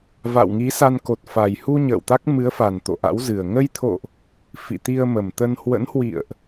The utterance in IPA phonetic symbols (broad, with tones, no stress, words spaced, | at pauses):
va̰˧˨wŋi˨˦sa˧n ko˨˩t̚fa˨˩j hu˧ ɲə̰ː˧˨wt̪a˦˥k̚mɨ˨˦ə̯fa˨˩n t̪o̰˧˨ʔa̰˧˥w zɨ˨˩ə̯ ŋə˧jt̪ʰo̰˧˨ʔ | fḭ˧˨t̪i˧ə̯mə˨˩mt̪ə˧n hwə̰˧˥nhwḭ˧˨ə̯ʔ